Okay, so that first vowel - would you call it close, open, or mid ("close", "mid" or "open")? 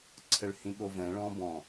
mid